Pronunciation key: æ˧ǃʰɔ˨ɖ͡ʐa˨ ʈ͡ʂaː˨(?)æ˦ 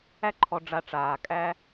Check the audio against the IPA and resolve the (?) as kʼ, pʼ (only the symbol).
kʼ